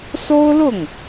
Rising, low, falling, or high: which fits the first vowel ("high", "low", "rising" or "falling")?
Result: high